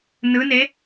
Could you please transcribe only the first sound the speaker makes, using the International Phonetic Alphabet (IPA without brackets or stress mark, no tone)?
n